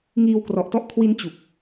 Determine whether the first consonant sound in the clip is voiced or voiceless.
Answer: voiced